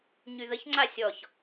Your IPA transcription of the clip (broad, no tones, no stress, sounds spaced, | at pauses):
ɲ y ð ə ç ŋ͡ǀ a sʲ ɔ ç